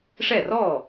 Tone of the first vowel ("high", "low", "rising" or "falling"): falling